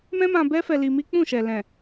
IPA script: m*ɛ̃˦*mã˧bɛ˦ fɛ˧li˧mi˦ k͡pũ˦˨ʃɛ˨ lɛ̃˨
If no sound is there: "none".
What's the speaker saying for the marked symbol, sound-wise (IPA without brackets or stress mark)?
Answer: ɛ̃˦